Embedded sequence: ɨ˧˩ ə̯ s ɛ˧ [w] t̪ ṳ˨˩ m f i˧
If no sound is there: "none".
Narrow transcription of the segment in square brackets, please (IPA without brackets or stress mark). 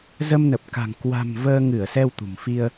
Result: w